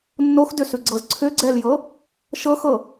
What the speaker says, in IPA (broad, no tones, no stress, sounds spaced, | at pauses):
nː o x d ʏ s ʉ ɡ͡ǀ ɤ z ǀʰ ʏ ɡ͡ǀ ɛ l j ɤ | ʃ ɤ x ɤ